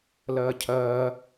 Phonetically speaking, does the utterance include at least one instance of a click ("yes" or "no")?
no